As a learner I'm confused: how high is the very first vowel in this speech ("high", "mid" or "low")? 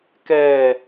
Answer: mid